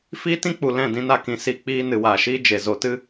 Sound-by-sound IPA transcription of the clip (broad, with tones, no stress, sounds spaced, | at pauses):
f iː˦ t ĩ˦ k͡p u˨ l ɛ̃˦˨ d ĩ˧ n a˧ k ĩ˨ s i˧ k͡p iː˧ n ɨ˨ w aː˨ ʃ iː˦ d͡ʒ e˨ z o˧ t ɨ˦